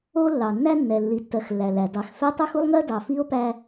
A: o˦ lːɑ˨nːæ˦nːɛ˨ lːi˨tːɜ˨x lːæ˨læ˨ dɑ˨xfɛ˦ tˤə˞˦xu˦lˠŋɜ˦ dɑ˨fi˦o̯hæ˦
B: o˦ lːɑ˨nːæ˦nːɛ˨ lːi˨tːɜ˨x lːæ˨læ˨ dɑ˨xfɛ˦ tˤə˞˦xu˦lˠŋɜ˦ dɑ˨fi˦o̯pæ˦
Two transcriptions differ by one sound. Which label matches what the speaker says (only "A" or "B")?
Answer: B